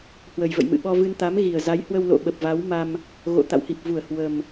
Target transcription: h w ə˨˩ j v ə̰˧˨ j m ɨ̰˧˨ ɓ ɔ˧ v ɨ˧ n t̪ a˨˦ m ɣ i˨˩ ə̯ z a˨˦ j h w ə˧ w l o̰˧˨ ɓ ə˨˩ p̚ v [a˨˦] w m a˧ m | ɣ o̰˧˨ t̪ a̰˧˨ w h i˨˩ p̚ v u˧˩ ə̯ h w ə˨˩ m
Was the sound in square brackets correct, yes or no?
yes